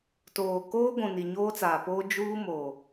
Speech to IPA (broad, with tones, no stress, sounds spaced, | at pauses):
t oː˨ k oː˦ ɡʷ ũ˨ n i˨ ɲ oː˦ t͡s aː˨ p oː˦ d͡ʒ uː˦ m o˨